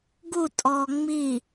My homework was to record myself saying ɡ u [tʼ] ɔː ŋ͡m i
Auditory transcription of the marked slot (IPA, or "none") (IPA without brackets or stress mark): tʼ